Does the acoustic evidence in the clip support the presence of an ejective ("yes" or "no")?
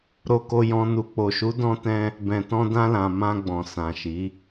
no